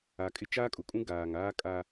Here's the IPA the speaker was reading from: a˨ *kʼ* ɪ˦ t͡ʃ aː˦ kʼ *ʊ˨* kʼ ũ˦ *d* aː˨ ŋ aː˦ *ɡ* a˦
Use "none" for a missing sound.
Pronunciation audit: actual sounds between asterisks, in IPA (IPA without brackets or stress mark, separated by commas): kʼ, ʊ˨, ɡ, kʼ